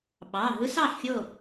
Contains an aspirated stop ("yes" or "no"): no